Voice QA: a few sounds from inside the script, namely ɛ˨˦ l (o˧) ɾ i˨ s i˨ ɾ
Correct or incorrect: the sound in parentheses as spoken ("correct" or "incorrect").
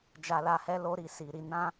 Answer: correct